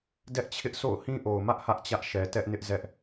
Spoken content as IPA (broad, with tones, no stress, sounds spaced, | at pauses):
d ɛ˦ ʔ t͡ɕʰ ɪ˦ ʔ s o̰˦˨ ʊ̯ h ĩ˦ ʔ o˨ ʊ̯ m ä˦ ʔ h ä˦ ʔ t͡ɕ ä˦ ʔ ʃ ɛ˨ t ɛ˦ ʔ n ɪ˦ ʔ z ɛ˦ ʔ